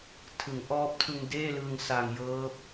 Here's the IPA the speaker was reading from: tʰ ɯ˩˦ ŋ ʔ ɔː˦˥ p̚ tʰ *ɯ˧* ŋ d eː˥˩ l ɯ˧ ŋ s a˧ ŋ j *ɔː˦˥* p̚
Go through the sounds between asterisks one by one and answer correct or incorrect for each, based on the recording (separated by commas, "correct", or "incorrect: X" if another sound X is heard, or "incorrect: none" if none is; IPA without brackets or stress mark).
correct, incorrect: ɤː˦˥